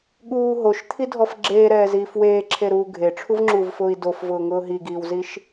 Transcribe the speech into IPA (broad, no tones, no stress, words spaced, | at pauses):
ɠuː ɦoʃt̪ʰidʱɔf ɡ͡ǁeːɾɛːziːf weːǁʰeɾuː ɡʱeʈ͡ʂʰuvŋ͡ǁuːvfʊːi̯ dofvʊːŋʊː ɦiɡiːwziʃ